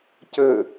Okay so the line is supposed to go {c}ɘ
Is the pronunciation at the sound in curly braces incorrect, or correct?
correct